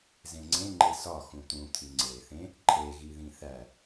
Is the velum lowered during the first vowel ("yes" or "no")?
yes